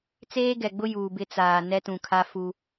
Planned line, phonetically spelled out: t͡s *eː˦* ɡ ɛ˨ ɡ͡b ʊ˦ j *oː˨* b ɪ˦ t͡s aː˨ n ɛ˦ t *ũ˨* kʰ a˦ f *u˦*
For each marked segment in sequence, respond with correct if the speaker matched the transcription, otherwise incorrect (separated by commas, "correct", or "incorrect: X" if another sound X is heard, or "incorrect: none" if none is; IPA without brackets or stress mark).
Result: correct, incorrect: uː˨, correct, correct